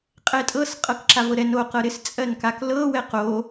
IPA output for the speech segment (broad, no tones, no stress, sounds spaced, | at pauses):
qʼ ɛ tʼ ɤ s qʼ ɤ k ǁ a v ɤ ɾ ɛ n o q ɤ ɾ ɪ s t͡sʼ ɜ n k a k l ɤ w ɛ q o